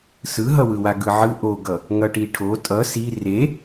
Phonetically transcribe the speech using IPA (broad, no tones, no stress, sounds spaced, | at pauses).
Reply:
s ɯ ɦ ʌ w ɯ w a ɡ ɯ ʕ ɯ ʔ o ɡ ʌ | ŋ ʌ ʈ i ʈʰ o tʼ ʌ s i r e